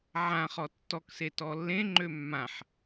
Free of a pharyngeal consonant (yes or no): no